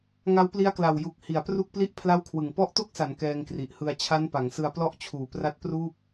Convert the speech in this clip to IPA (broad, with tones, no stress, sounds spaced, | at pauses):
ŋ a˦˥ w p l i˦˥ a̯ k l a˨˩ w j u˨˩ k̚ h i˩˦ a̯ p r u˥˩ k̚ p l i˥˩ ʔ pʰ l a˥˩ w kʰ w ɯ˨˩ ŋ p ɔ˦˥ ʔ t o˥˩ k̚ s a˩˦ n k ɛː˧ ŋ k r i˨˩ ʔ h ɯ˧ a̯ t͡ɕʰ a˦˥ n p a˩˦ ŋ s ɯ˧ a̯ p l ɔ˦˥ ʔ t͡ɕʰ uː˩˦ p r a˦˥ t̚ p r uː˥˩ p̚